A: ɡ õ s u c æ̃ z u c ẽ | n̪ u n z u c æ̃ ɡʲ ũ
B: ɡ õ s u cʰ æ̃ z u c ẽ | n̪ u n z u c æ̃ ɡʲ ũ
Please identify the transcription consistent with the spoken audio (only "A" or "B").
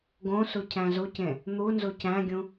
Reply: B